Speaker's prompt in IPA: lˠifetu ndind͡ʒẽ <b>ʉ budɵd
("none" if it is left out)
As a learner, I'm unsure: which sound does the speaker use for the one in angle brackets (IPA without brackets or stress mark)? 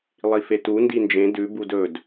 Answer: d